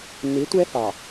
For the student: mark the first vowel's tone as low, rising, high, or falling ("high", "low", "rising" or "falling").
rising